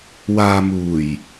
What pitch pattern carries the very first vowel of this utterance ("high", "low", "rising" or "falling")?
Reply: low